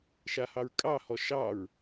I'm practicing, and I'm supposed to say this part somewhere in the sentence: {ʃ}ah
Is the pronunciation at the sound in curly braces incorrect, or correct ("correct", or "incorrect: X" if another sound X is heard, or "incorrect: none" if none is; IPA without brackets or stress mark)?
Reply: correct